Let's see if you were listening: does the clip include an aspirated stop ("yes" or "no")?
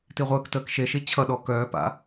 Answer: yes